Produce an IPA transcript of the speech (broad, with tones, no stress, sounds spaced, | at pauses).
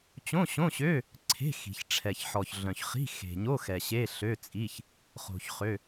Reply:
t͡ɕ õ˧˥˧ ɕ õ˧˥˧ ɕ ø˧˥˧ | ǀʰ e̤˧˥˧ x i̤˨ ç ʈ͡ʂʰ ɛ˨ ç ħ ɔ˨ ç ɮ œ̃˨ ç χ i̤˧˥˧ x e̤˨ ɲ o˧˥˧ x ɛ˨ ɕ e˧˥˧ ɬ ø˧˥˧ t͡sʼ i˧˥˧ ç | χ o̤˨ ç χ ø˧˥˧